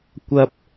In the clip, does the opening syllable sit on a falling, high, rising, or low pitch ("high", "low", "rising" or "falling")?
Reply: low